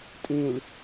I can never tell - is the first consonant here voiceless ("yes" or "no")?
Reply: yes